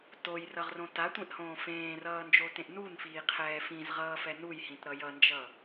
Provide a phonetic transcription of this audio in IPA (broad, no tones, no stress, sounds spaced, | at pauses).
t o j r ʌ ʁ r õ t a tʷ ẽ ʔ h õː f ẽː r ʌː n d͡ʒ o t ẽ ʔ n u n f iː qʰ ɛː f ĩ z ʁ ʌː f ɛ n u j h ĩ t ɾ ʌ j ʌ n d͡ʒ ʌ